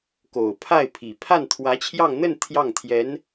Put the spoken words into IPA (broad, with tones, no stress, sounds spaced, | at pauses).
k o˨˩ ʊ̯ pʰ a˥˩ ɪ̯ pʰ i˨˩ pʰ a˥˩ n t̪ʰ w ä˧˥ t͡ɕʰ j ɑ˥˧ ŋ n̪ ə˥˧ n t̪ʰ j ɑ˥˩ ŋ t̪ʰ j ɛ˧˥ n